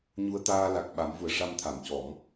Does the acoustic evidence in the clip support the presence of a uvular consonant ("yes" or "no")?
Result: no